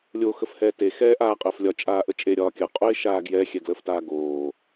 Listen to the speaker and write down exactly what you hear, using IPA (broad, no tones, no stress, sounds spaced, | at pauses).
lʲ o x ə f h ɛː t e x ɛː ʔ aː qʼ əː f lʲ ɒ t͡ʃʼ aː ʔ ə t͡ʃʼ e ɾʲ ɒː kʲ ə qʼ o ɪ̯ ʃ aː ɡ j ɛ xʲ ɛ ɡ l əː f t aː ɡ oː